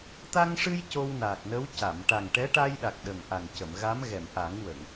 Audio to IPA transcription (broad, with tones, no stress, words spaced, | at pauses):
t̪a˧ŋʂɨ˧j co˧wnaː˨˩k̚nə˧˥w ca˨˩˨m ʈa˨˩ŋʈɛ˧˥ʈa˧jɗa˨˩k̚ ɗə˨˩ŋʔa˨˩ŋcə˨˩˨m ɣa˧˥mɣɛ˨˩˨mʔa˨˩˦ŋwə˨˩˨ŋ